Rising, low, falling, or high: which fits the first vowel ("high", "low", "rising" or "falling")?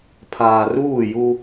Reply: low